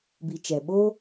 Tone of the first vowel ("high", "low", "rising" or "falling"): low